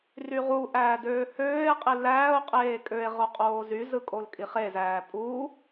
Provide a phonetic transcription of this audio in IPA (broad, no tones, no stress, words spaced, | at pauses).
ryʁuʔæː døːhøːe̯qʼi læːo̯qʼeː kʼøe̯ ʁoqʼoːzyzɯ kʼolkʼiχezæː pʼu